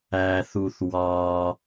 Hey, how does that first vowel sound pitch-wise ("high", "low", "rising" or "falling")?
low